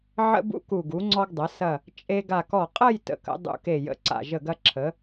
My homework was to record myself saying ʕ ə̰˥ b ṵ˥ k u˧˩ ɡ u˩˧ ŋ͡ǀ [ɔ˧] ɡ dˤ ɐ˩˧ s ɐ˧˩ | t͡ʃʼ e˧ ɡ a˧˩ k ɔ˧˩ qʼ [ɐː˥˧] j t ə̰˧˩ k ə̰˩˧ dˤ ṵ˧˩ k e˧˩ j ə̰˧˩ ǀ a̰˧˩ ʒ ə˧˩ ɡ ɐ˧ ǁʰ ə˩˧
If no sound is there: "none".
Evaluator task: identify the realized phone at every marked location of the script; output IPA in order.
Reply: ɔ˧, ɐ˥˧

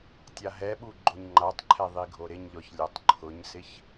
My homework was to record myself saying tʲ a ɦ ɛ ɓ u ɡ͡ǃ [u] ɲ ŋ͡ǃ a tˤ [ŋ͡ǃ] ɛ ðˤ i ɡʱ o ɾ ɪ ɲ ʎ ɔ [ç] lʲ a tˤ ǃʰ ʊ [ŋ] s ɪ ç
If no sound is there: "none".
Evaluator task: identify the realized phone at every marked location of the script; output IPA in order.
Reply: o, ǃʰ, ç, ɲ

